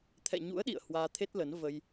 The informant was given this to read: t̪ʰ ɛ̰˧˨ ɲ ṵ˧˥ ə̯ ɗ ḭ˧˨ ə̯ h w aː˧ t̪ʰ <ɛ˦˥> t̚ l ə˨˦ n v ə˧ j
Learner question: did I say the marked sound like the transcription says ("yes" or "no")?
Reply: no